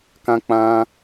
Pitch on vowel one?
high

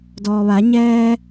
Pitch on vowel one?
low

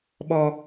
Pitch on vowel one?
low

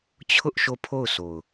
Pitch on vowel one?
high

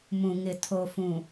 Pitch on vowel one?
low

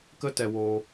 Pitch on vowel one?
high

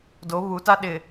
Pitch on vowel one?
rising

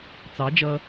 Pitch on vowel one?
rising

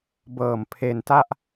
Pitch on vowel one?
low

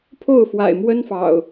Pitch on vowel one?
falling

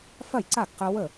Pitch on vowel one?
falling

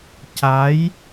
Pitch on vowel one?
rising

